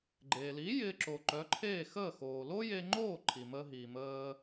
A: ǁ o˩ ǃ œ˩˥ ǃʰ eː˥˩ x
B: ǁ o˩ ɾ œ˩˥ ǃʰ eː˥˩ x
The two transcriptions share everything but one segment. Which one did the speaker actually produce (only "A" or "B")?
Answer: A